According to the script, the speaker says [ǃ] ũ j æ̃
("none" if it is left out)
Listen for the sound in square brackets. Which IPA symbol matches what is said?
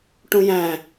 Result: ʈ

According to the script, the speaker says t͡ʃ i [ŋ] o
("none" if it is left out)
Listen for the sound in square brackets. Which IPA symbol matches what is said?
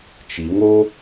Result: ŋ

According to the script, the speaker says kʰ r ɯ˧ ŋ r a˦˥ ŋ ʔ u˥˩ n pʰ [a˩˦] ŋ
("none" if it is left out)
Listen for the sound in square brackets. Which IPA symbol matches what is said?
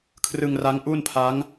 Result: a˦˥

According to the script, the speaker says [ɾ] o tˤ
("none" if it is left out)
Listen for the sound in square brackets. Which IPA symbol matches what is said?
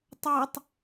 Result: tˤ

